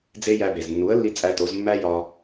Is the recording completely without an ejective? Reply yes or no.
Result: no